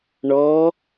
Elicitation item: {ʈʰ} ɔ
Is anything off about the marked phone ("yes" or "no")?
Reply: yes